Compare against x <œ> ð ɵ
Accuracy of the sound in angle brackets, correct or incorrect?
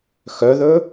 correct